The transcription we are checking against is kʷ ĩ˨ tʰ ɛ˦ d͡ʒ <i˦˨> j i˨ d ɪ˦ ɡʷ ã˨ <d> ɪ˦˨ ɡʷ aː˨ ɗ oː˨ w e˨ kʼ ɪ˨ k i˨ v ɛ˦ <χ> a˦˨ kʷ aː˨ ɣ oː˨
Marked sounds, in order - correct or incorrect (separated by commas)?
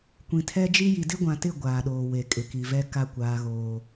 incorrect, incorrect, incorrect